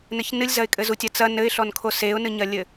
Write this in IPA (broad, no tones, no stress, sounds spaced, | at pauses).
n ɘ ç n ɨ lʲ z ɐ ɪ̯ kʼ ɘ z u tʲ ɐ t͡s ɐ n ɘ ɪ̯ ɬ ɔ n kʰ o s e ʊ̯ n ɨ ɲ ɐ lʲ ɘ